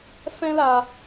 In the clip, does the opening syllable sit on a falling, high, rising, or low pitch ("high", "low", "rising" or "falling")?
high